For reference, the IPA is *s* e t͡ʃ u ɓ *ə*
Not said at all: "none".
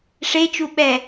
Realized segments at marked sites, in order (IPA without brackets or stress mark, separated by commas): ʂ, ɛ